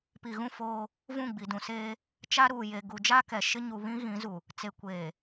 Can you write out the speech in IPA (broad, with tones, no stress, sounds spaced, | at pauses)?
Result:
p i˨ ɣ ũ˦˨ f oː˦ | v ũ˦˨ ɡ͡b i˨ d ũ˨ s eː˦ | t͡ʃ a˦ ɾ uː˨ j e˨ ɡ u˨ d͡ʒ a˦ k ɛ˨ ʃ ɪ˦ ɲ u˨ β ĩ˦ ɣ ĩ˨˦ z u˨ | t͡s e˨ kʷ eː˨